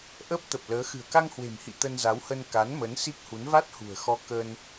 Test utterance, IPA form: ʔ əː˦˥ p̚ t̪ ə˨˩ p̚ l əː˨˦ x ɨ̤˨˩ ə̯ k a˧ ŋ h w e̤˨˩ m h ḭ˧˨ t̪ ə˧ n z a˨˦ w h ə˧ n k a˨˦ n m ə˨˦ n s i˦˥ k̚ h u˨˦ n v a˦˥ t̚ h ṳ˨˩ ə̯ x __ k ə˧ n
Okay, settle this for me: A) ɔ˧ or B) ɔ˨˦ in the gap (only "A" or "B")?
A